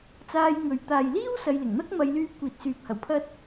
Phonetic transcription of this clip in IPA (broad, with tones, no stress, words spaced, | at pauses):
t͡saː˧j ŋɵ˨ɥ t̪aː˨jliː˥w sɐ˧jlɪ˨˩ŋ n̪ɐ˥k̚mɐ˨˧jlyː˧p̚ kʷiː˨t̚syː˨p̚hɐ˨˩w pʰɐ˥t̚